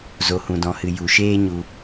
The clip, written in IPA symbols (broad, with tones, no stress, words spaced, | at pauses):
zo˨hũ˨dɔ̃˨hɨ˨ ju˨ʃeː˦ɲu˧